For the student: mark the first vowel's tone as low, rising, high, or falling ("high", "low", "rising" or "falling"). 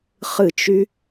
falling